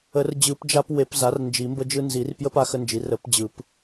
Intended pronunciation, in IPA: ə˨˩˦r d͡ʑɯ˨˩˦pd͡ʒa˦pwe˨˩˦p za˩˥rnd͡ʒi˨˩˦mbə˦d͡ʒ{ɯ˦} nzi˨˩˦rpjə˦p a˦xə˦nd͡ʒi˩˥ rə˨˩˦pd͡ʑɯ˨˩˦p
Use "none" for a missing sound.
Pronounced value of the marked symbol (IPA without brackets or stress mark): ɯ˦